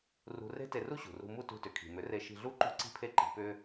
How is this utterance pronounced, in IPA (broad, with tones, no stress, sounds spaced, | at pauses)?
r ṳ˧ r e̤˦ t e˧ r u˦ ɕ ṳ˨ r ṳ˧ m u˦ t ṳ˧ t ʏ˨ kʰ i̤˨ m ʏ˨˦ r e˧ ʃ i̤˧ ɮ u˦ ǃ ṳ˦ ǀ i̤˦ pʰ e˦ ǃ i̤˧ p ʏ˦